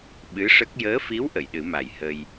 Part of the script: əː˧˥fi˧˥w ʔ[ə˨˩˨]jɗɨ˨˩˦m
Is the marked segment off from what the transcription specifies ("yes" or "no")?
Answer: no